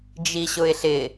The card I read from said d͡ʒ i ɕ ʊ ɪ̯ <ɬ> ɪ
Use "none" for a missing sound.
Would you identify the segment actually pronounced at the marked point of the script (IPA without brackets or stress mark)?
ɬ